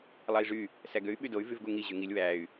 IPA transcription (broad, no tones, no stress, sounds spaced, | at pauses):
lˠ ɑ i̯ ʐ y | s æ ɡ ø y̯ ɓ y d o y̯ v y v ɡ u ŋ i ʑ y ŋ i lʲ w æ y̯